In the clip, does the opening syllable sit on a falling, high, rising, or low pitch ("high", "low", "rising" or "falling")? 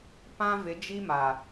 high